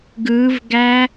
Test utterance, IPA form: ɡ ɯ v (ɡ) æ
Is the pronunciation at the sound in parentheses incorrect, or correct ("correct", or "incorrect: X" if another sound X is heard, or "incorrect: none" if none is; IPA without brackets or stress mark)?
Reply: correct